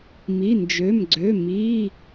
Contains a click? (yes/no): yes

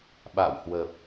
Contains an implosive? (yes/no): yes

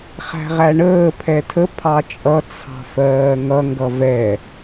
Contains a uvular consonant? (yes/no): yes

